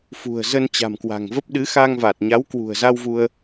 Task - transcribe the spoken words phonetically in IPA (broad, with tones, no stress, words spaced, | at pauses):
fṳ˨˩ə̯ zə˧nt͡ɕa̤˨˩mkwa̤˨˩ŋvə˦˥p̚ ɗɨ˨˦xa˧ŋva˨˩t̚ɲa˨˦w kwṳ˨˩ə̯za˧wvu˧ə̯